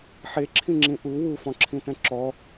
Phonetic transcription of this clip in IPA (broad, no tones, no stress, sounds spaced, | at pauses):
ħ e ǁʰ ĩ ŋ͡ǁ ĩ ʔ u w u f ɔ̃ ǁʰ ĩ t ɛ̃ ǁ ɔ